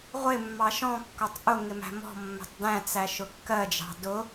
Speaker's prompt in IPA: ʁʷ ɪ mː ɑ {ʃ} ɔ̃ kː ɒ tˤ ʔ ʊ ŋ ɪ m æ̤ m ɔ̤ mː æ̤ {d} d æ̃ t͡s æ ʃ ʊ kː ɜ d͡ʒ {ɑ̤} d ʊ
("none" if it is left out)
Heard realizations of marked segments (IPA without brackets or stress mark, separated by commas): ʃ, tˤ, ɑ̤